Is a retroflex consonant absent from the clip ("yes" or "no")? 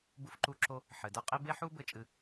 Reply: yes